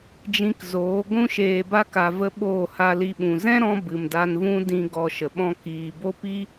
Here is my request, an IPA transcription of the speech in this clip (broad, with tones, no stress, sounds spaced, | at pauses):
d͡ʒ ĩ˧ k z oː˨˦ ɡʷ ũ˧ ʃ eː˨ b a˧ k a˨ v ə˧ ɓ oː˦˨ h a˧ l i˧ ɓ ũ˨ z ɛ̃˦ ɾ ɔ̃˧ b ɨ˨ m d a˧ n v ũ˦ d ĩ˧ ɡ ɔ˧ ʃ ə˨ ɓ ɔ̃˦ k iː˨ b o˦ p i˦